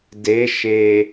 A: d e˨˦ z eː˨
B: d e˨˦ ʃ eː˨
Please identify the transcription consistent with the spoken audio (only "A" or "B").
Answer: B